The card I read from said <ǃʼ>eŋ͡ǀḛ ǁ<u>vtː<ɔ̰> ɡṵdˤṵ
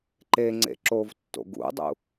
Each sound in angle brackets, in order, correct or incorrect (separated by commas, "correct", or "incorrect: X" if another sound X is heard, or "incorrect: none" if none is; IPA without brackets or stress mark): incorrect: ǃ, incorrect: o, incorrect: o̰